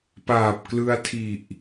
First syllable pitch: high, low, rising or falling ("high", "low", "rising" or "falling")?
low